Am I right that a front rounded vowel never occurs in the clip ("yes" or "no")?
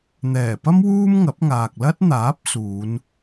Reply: yes